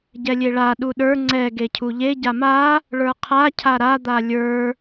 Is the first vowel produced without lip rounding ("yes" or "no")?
yes